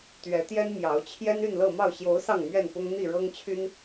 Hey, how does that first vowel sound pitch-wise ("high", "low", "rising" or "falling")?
rising